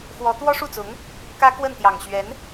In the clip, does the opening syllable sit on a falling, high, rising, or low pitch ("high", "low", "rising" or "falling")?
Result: rising